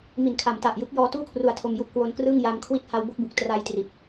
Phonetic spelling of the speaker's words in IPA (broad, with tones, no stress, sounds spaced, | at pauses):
m i˩˦ n kʰ a˩˦ m t a˨˩ ʔ j ɯ˦˥ k̚ j ɔː˧ t uː˥˩ kʰ r u˧ a̯ tʰ o˧ m j u˥˩ ʔ k w o˦˥ n k r ɯː˥˩ ŋ j a˧ m kʰ w i˥˩ t̚ h a˦˥ w b o˥˩ k̚ b u˨˩ k̚ t r a˦˥ j t r i˨˩ t̚